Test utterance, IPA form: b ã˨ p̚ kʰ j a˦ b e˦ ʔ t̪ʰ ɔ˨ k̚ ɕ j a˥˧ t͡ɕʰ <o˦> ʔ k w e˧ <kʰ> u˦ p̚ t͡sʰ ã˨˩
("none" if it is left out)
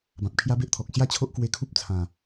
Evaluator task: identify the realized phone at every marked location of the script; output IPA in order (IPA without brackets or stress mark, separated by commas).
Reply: o˦, kʰ